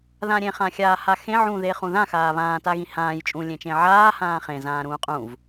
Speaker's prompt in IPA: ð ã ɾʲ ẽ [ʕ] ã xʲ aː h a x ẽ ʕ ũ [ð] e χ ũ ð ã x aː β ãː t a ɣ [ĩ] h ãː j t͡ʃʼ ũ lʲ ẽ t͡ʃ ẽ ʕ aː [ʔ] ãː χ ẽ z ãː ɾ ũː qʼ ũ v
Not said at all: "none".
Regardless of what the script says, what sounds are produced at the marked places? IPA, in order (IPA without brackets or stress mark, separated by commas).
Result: χ, ð, ĩ, h